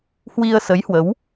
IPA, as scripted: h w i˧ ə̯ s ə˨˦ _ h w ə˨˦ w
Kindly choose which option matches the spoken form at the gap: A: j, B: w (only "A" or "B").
A